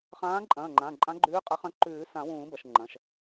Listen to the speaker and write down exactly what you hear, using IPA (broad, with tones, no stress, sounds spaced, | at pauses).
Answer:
χ ãː˧˥ ǃʼ ɐ̃ː˩˧˩ ŋ͡ǃ ã˩˧˩ ǃʼ ã˧˥ ɡ͡ǃ ʉː˧˥ qʼ ɐ˧˥ χ ɐ̃˧˥ ǃ ʉː˨˩˦ s ã˨˩˦ w ũː˨˩˦ b ɐ˩˧˩ ʃ ŋ͡ǃ ɐ̃˩˧˩ ʃ